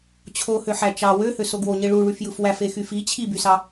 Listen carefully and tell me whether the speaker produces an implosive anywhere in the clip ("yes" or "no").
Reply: no